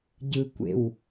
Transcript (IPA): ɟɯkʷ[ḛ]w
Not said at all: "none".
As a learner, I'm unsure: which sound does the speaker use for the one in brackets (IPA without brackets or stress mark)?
ḛ